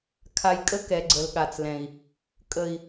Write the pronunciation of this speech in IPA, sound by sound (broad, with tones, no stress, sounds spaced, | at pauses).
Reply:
kʰ a˨ j kʼ ə˧ k ɛ˨ ɡ͡ǀ ə˨ l ɠ a˨ t͡s l ɛ̃˨ i̯ | kʼ ə˨ i̯